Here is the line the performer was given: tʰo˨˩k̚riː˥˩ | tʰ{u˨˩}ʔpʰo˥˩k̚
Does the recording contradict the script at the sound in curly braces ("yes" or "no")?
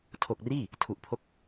no